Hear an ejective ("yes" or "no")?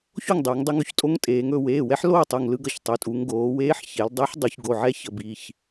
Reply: yes